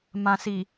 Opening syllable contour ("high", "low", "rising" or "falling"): low